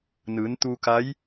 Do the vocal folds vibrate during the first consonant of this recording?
yes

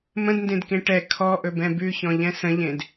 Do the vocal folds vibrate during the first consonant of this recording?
yes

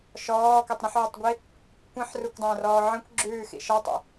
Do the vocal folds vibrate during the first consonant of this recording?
no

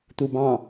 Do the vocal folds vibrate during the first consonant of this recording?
no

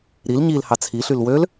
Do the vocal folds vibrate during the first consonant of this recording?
yes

